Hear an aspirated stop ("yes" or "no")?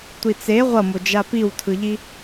yes